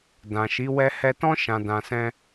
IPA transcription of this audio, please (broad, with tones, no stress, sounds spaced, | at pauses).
d ã˨ ʃ i˨˦ w ɛ˧ h ɛ˧ t ɔ̃˦ ʃ ã˧ d ã˧ s ɛ̃˦